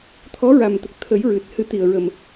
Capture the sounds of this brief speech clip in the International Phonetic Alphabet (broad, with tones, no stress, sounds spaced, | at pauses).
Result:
t̪ʰ ɔ˧˥ ɹ a˨˩ m t̪ ə˨˩ k̚ t̪ʰ ə˨˩˦ j ɹ ɨ˨˩ t̚ h ɨ˨˩˦ t̪ i˨˩ ə̯ ɹ ə˨˩ m